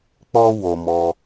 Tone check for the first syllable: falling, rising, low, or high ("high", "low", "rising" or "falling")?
high